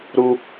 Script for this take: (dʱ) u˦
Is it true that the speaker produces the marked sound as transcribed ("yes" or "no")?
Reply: no